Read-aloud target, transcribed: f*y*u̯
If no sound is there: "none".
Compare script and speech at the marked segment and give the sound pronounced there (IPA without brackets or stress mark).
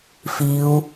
i